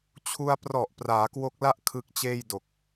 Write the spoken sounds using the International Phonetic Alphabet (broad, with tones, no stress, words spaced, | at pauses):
t͡ɕʰu˧a̯ prɔ˨˩ʔ praː˩˦kwo˦˥k̚la˥˩ʔ kʰɯ˦˥k̚t͡ɕeː˥˩jdo˨˩k̚